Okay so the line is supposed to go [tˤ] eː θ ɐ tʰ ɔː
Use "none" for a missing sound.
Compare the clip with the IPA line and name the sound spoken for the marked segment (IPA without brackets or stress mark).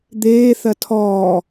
d̪